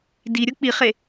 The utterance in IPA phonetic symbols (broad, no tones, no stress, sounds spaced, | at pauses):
d i ɾʲ o k͡p i χ e